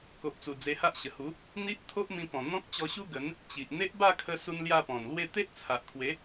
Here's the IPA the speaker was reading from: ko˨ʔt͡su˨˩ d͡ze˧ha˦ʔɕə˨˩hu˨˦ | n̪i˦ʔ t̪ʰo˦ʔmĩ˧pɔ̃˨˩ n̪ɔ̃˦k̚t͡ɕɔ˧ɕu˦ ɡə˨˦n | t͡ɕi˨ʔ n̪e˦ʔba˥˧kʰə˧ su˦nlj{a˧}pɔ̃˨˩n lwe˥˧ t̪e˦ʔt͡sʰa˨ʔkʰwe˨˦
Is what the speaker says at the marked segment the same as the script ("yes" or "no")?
no